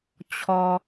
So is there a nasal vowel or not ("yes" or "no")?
no